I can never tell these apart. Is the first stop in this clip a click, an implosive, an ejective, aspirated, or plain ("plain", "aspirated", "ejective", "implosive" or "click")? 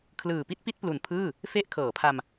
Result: aspirated